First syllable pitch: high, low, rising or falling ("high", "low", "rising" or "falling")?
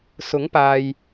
rising